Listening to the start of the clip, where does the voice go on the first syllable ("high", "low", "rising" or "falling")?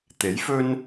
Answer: rising